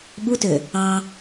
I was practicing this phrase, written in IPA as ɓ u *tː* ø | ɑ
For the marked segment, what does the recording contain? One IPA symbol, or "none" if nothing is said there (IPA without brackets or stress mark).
t